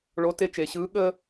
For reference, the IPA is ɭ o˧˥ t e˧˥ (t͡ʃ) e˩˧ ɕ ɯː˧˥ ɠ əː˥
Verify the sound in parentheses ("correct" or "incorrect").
correct